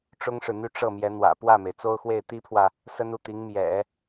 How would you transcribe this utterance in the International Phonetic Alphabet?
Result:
ʈ͡ʂ ʊ˥ ŋ ʂ ɻ̩˨ n̪ y˥˧ ʈ͡ʂ ɤ˥˩ m j ɛ˧˥ n̪ w ä̰˨˩ p w ä˥˩ m e˩ ɪ̯ t͡s o˥ ʊ̯ x w e˥˩ ɪ̯ t̪ i˥ pʰ w ä˨ | s ə˥ n u˥˩ t̪ i˧˥ ŋ m j ɛ̰˨˩˦

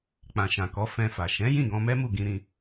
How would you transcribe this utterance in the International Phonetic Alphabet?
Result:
k͡p ã˨ ʃ ã˨ k ɔ˨˦ f ɛ̃˧ f a˨ ʃ ɛ̃˨˦ j ĩ˦˨ ɡ ɔ̃˧ m ɛ˦ m u˦˨ ɡ ĩ˧ ɾ ĩ˧

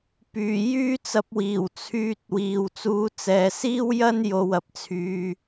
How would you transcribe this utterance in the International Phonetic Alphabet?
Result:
p yː˨˩ j yː˥ t͡s ɐ˧ p̚ w iː˨˩ w t͡sʰ yː˧ t̚ w iː˨ w t͡s uː˨˧ t͡s ɛː˨ s iː˥ w j ɐ˥ n j o˧ w ɐ˨ p̚ t͡sʰ yː˧

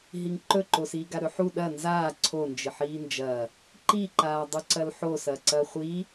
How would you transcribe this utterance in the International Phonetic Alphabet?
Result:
ɦ i ŋ ǃ ɵ ǃ o s iː ɡ a ɾ ɵ ħ u ɗ ɐ n z aː ǀʰ o n d͡ʒ ɨ ħ iː n d͡ʒ ɐː | ǃ i ǃ aː dˤ u ǀ ɐ l ħ o s ɐː ǀ ɐː χʷ iː

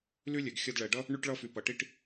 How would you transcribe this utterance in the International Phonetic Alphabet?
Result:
l y˦ lʲ ɛ˨ ɡ xʲ ʌ˧ d ɭ ɛ˨ ɖ ʌ˦ | ɳ y˧ ʈ ɭ ʌ˧ f y˨ p ɐ˨ ʈ i˧ ʈ

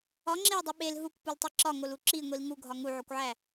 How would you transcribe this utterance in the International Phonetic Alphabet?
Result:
ɒ ŋ͡ǁ e ə̯ dˤ u ɓ e l ɦ u kʷ p u l tˤ e ǁ ɒ ŋ o l u ǁ i ŋʷ i l ŋ u ɡʱ ɒ ŋ u ʕ o kʷ ʕ æ

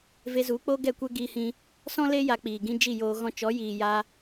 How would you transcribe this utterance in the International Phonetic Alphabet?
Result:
v e˧ z u˨˦ k͡p o˦ ɡ ɛ˦˨ kʷ ɛ˦ ɡ iː˧ h ĩ˧ | s ɔ̃˦ l e˦ j a˧ k͡p iː˨ ɡ ĩ˦ d͡ʒ i˦˨ j oː˧ ɣ ɔ̃˧ t͡ʃ ɔ˨˦ j iː˨ j a˧

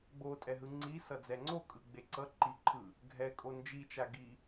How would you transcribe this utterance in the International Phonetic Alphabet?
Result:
ɡ͡b o tʼ ɛ ɦ ɯ ŋ͡ǀ i s ʌ d͡z ɛ ŋ͡ǀ o kʼ ɯ ɡ͡b e ǀ ʌ ǃ i ǃʰ ɯ | ɡʱ ɛ kʼ o n d͡ʒ i t͡ʃ a ɡ i

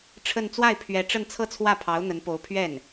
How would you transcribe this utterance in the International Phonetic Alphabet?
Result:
ʈ͡ʂʰ ə˥˧ n t͡s w a˥˩ ɪ̯ pʰ ɥ ɛ˧˥ ʈ͡ʂ ə˥˧ n t͡sʰ ɤ˥˧ t͡sʰ w ä˥˩ pʰ ɑ˧˥ ʊ̯ n̪ ə˧˥ n p o˧˥ ʊ̯ pʰ ɥ ɛ˥˩ n

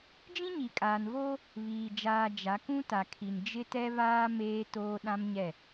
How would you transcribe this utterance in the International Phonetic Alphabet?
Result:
d͡ʒ ĩ˦ ɲ i˨ kʼ aː˨ n v oː˦ | β iː˨ d͡ʒ aː˨ d͡ʒ a˨˦ k ũ˦ t a˨ kʰ i˨ n d͡ʒ ɪ˦ t ɛ˦ β aː˦ m eː˦ t oː˦ ɗ ã˦ m ɲ ɛ˦˨

